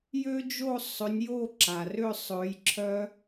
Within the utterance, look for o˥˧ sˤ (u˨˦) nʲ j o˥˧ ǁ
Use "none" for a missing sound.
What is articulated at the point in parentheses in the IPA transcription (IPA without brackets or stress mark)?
ʏ˨˦